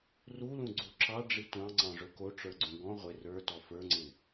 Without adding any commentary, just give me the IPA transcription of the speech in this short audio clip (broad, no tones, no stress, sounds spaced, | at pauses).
r u l ũ ɡ͡ǀ u ǁ ɑ ɖ͡ʐ i tʷ ɑ̃ ŋ͡ǀ ɑ̃ ʐ ɵ k o ʈ͡ʂ ə˞ ɡ͡ǀ ũ ɡ ɔ̃ ʁʷ ɪ r ə˞ t ɔ f ə˞ ŋ͡ǀ ɪ